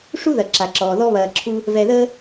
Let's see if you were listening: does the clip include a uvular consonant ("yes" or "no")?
no